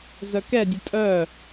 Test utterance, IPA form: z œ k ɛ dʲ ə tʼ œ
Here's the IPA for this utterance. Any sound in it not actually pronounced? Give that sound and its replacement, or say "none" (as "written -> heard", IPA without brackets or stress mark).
none